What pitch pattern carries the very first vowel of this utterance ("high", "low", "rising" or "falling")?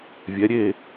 rising